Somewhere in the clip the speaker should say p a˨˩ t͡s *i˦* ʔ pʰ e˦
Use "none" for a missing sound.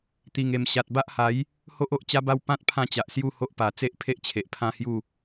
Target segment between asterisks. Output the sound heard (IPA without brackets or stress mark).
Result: e˦